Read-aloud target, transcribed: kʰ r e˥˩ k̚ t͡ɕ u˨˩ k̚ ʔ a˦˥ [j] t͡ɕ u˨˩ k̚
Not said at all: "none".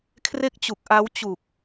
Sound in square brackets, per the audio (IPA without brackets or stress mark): w